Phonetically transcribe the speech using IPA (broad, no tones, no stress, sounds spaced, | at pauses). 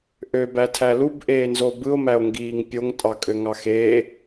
ʔ ø b æ tʰ æ l u b ʔ eː n z o b ɯ o̯ m æ o̯ ŋ ɡ iː ŋ pʲ o ŋ tʼ ɑ kʼ ø ŋ ɑ x eː